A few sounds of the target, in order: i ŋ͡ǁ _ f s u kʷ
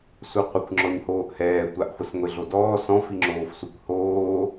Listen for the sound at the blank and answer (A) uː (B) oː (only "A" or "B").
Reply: B